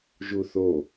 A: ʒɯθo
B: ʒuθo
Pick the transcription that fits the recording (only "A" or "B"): B